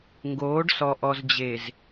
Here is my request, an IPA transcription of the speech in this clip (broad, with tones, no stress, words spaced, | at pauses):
ŋɡoː˨˦ɖsɔ˨ ʔɔ˨zd͡ʑe˨z